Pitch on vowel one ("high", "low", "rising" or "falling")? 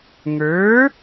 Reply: rising